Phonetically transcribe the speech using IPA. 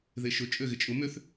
ð e ʃ ʊ t͡ʃʼ ø ɣ ɪ t͡ʃʼ ʊ m ʏ θ

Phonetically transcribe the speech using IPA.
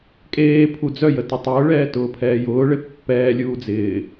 kʼ eː pʰ u d͡z œ j ə t ʊ tˤ ʊː ɭ ɛː t ʊː pʰ ɛː j ʊː ɭ e pː ɛː lʲ uː d͡z ɪː

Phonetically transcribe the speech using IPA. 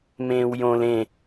m ẽː w j õ l ẽ

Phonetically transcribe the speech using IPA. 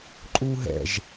ǃʼ uː ɦ ɛ̰ ʒ

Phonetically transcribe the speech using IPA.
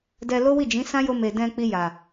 d ɛ˧ l o˦ w i˦˨ d͡ʒ ĩ˨˦ s ã˦ j o˧ m e˨ d ɛ̃˧ k͡p i˧ j a˨

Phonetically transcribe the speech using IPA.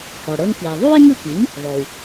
h ɔ˩ ɽ ɤ˧ ŋ k i˩ ə̯ ðˤ u˥ ɪ̯ ŋ ɯ˥˩ k i˩˥ ŋ | ðˤ o˩ w

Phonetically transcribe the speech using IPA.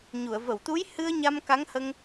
ɲ u˨˩˨ ə̯ v ə˨˩˨ w t̪ u˧˥ j h ɨ˧ ə̯ ɲ a˧ m k a˧˥ ŋ h ə˧ ŋ

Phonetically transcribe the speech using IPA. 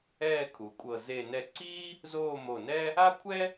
ɛː˥˧ kʰ u˩˧ kʷʼ ɤ˧˩ z e˧˩ n ɛ˧ ǀ iː˥ | z oː˥˧ m o˧˩ n ɛ˥ | a˥ kʷʰ ɛ˥

